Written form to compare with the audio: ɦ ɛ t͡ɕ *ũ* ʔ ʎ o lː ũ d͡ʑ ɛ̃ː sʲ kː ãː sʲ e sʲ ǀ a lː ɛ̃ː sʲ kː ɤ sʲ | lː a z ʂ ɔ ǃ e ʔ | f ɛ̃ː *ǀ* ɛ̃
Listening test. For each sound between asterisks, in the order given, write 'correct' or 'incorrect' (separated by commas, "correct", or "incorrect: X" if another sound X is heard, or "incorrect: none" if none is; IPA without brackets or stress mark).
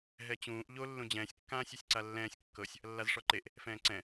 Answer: incorrect: ũː, correct